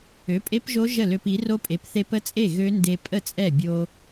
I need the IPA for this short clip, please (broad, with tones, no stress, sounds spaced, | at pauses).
ø˩˥ pʼ e˦˥ p ʒ o˦˥ ʒ ə˥˩ l ø˧ p i˩˥ r o˦˥ pʼ e˩˥ p θ e˧ p ə˦˥ t͡sʼ e˥˩ ɣ ø˦˥ n d e˧ pʼ ə˥˩ t͡sʼ ɛ˥˩ bʲ o˧